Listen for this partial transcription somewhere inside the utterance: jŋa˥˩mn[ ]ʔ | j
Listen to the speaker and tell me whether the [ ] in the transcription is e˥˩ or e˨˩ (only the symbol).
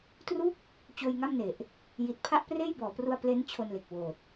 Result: e˨˩